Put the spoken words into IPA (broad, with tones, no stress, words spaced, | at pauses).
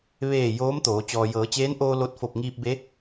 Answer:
ʋeː˧˩ joː˧˥mt̪oː˩˧ t͡ɕɔː˩jɤː˩˧t͡ɕeː˧˥nʔoː˧ lo˧t̚fo˧˩p̚ŋiː˧p̚ be˧˥